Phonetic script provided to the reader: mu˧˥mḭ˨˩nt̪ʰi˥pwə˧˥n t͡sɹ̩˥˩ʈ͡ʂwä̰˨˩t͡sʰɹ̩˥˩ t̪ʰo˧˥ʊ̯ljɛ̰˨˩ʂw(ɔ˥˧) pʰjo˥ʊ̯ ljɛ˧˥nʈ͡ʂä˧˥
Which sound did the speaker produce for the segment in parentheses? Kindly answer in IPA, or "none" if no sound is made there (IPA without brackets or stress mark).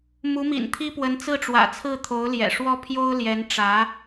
ɔ˥